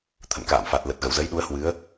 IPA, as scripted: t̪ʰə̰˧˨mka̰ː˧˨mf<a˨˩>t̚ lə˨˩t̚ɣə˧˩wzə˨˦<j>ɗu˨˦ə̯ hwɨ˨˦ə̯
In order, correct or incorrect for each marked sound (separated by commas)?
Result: correct, correct